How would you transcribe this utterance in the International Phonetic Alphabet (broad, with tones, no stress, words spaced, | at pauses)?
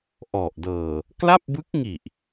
ʔɔ˨˩ʔdɤː˨˩ | kla˥˩p̚bɯ˦˥k̚ŋi˨˩ʔ